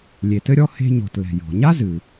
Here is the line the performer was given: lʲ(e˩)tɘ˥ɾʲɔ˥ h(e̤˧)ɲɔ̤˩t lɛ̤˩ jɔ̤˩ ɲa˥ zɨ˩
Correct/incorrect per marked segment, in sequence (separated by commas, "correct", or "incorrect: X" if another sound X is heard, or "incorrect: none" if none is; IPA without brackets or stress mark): correct, correct